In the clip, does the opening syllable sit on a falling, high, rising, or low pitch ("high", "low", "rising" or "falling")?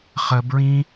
high